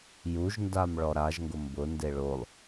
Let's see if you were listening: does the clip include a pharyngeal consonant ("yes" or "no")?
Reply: no